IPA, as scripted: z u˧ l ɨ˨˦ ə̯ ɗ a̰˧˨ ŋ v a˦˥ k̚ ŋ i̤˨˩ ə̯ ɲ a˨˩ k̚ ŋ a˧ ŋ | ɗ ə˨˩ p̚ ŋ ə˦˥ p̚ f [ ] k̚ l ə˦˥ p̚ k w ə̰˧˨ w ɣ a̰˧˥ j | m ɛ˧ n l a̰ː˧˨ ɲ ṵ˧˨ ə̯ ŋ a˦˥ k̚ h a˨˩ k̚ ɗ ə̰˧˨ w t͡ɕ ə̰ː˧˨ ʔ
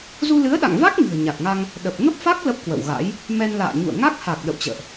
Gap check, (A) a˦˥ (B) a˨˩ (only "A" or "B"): A